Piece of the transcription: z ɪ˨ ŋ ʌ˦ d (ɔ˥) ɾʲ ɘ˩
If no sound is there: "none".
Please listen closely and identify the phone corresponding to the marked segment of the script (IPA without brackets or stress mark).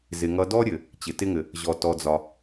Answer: ɔ˥